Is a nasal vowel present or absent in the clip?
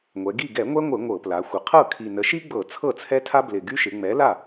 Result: absent